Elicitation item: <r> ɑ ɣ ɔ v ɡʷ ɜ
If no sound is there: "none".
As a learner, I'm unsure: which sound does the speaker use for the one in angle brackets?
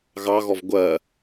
ɣ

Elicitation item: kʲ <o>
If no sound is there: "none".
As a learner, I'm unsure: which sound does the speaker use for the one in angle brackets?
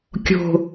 o̤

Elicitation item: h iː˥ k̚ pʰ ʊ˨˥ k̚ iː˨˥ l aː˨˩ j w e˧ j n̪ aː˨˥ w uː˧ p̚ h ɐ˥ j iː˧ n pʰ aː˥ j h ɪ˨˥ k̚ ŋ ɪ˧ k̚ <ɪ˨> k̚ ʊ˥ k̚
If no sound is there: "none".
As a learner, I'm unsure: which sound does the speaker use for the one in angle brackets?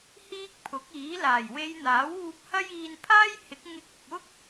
ɪ˨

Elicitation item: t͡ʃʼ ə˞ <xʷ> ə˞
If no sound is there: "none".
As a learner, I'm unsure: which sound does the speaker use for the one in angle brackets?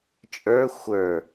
xʷ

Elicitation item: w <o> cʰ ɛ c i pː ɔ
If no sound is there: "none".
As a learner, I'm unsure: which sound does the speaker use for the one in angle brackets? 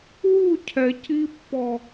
u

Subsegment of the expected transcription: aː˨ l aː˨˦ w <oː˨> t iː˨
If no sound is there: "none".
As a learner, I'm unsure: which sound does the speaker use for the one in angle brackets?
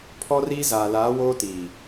oː˦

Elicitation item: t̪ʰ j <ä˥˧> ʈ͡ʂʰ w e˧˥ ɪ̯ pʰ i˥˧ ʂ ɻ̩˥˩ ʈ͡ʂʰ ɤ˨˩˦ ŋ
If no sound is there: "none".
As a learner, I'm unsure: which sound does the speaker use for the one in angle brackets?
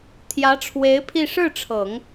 ä˧˥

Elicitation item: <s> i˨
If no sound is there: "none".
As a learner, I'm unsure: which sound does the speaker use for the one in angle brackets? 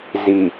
z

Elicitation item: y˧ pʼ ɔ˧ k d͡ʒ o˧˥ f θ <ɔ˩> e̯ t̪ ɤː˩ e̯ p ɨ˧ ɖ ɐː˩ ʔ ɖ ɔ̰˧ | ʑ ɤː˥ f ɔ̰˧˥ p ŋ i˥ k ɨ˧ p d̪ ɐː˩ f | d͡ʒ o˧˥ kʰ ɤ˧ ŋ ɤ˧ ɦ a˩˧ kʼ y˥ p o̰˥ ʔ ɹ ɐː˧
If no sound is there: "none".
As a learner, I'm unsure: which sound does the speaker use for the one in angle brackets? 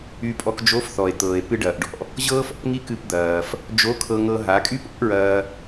ɔ˩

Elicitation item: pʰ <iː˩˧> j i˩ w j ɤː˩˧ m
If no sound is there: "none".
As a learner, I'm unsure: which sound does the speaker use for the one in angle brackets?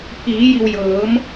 iː˩˧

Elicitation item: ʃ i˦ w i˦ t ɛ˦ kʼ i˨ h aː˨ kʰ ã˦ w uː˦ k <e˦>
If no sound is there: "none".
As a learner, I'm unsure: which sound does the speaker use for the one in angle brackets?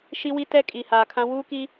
i˦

